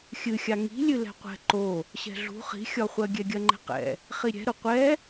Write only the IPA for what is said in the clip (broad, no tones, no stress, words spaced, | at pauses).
xʲɨxʲa ŋi̤lʲɨ lɛ̤qʷɛ̤ ǃo | ɕɛ̤ɮṳ χi̤xʲɒχʷɜ ɡʲɛɡʲɜŋ͡ǃɛ̤qɛ̰ | χiɾʲɛ̤ɾʊ qʷɛ